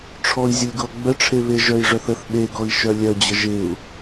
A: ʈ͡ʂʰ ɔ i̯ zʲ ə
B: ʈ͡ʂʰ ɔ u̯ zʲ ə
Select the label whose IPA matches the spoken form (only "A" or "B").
A